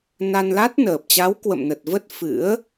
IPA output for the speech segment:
n a˧ n l a˦˥ t̚ n əː˨˩ p̚ t͡ɕ a˨˦ w k w ə̰˧˨ m n ə˨˩ t̚ v ə˦˥ t̚ f ɨ̰˧˥ ə̯

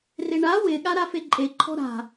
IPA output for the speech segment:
r ɪ ɳ a w ɪ ɠ a ɾ a f e ǃʼ e ǃʰ ɔ̤ ɾ a̤

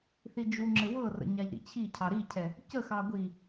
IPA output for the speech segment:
θ i d͡ʒ u ŋ͡ǁ ɘ w ɤ r ə̰ ɲ a ʎ ɾ ḭ t͡ɕʰ i cʰ ɑ ɾ i cʰ ɛ | c ə x ɑ ɡʷ i

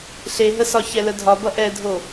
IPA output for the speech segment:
ɬ e ɦ ə s ɒ ç ɛ l ə dʱ ɒ b ʌ ʔ ɛ dʱ o

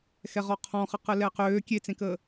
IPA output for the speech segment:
x ɛ ʁ ɔ qʰ ɔ̃ χ ə q ə l ɛ q øː kʲ e t͡s ẽ k əː

